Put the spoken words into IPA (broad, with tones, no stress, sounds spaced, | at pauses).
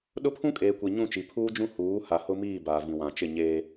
ɗ ʊ˦ pʰ ũ˦ kʼ eː˨ kʷ i˨ ɲ ũ˦˨ t͡ʃ i˨ pʰ uː˦ d͡ʒ ũ˦ h uː˨˦ h a˨ h ʊ˦ m iː˦˨ b aː˨ v ĩ˨ w ã˨ t͡ʃ ɪ˦˨ ɲ eː˦